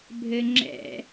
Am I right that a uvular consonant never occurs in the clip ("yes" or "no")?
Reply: yes